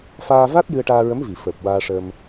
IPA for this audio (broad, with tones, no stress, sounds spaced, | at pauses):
f aː˧ v a˦˥ t̚ j ɨ˧ ə̯ ʈ aː˧ ɹ ə˧˥ m v i˨˩˨ f əː˨˩ p̚ w aː˧ ʂ ə˧ m